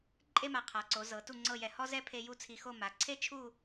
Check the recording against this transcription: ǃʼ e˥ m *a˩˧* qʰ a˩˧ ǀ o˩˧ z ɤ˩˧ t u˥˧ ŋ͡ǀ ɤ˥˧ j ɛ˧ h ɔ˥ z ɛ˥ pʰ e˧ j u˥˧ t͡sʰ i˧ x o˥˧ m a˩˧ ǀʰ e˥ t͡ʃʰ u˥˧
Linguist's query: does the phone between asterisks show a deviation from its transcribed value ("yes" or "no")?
no